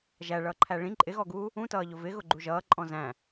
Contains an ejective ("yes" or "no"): yes